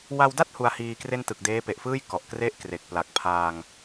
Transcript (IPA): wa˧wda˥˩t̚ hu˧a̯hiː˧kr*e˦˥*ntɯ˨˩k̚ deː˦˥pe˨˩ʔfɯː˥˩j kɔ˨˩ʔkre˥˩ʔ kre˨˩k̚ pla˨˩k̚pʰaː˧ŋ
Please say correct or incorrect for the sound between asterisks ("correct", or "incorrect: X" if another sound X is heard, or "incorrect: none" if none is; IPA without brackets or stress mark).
incorrect: e˥˩